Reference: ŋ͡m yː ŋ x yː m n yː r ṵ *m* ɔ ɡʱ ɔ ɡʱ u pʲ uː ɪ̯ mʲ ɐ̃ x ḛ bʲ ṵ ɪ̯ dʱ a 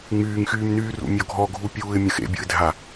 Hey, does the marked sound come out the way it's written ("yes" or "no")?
no